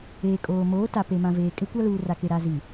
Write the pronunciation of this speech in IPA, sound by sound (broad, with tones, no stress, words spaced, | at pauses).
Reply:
eː˨kʼoː˨ moː˨˦ ta˨pe˨ mã˨veː˨ kʼɪ˦kʷa˦ luː˨ra˨ke˨ ɾa˨zi˨